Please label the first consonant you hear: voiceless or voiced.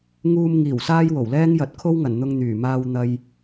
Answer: voiced